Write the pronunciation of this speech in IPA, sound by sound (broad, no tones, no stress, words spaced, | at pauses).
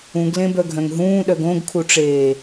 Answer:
ũɡlẽbœɡʱœ̃ŋ ɦũːɗœɡ õɡkʰuʈ͡ʂeː